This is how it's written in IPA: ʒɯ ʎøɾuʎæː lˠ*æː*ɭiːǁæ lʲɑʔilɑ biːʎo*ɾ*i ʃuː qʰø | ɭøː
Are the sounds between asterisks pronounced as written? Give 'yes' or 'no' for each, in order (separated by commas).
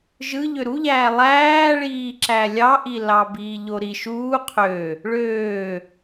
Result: yes, yes